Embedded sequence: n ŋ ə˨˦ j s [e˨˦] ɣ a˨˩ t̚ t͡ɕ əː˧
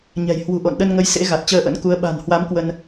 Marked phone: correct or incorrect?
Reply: incorrect